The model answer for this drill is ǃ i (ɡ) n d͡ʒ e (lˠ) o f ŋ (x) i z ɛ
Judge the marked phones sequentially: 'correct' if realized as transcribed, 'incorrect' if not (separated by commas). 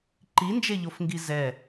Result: incorrect, incorrect, incorrect